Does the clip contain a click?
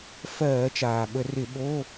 no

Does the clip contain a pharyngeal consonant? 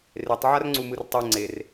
yes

